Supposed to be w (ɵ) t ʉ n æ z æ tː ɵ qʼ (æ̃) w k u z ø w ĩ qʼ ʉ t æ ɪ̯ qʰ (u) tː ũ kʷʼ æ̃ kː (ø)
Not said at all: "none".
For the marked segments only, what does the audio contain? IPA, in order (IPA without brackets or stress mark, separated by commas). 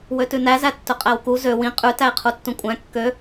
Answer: ø, æ, u, ø